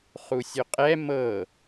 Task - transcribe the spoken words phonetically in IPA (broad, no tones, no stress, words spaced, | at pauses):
χusʲoqʼɛ mɤ